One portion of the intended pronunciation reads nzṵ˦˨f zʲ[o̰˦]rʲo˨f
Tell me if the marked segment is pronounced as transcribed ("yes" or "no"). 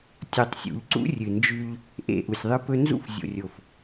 no